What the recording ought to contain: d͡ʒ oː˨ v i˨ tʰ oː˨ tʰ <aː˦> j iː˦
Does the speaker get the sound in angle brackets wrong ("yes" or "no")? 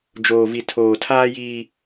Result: no